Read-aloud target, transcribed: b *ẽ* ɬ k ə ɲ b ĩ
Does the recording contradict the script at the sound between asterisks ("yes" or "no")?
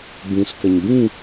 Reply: yes